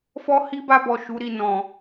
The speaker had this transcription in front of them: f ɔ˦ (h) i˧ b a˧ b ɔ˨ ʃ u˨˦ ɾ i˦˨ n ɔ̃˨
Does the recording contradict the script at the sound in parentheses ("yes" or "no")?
no